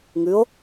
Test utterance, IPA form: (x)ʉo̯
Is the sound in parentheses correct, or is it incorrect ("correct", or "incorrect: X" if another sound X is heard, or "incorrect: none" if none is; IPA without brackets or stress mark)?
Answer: incorrect: ŋ